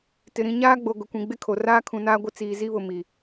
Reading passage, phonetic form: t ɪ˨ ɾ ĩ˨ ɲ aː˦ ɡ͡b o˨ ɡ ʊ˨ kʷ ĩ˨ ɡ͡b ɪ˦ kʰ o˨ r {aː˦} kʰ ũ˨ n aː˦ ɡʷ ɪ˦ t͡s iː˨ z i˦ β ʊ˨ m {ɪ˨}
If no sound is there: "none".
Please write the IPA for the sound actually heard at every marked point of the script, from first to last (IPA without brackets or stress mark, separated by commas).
aː˦, i˨